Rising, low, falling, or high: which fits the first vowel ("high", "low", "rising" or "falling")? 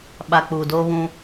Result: low